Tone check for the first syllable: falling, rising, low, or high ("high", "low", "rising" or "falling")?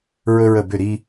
high